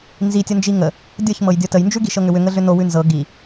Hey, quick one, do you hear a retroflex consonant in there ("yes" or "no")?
no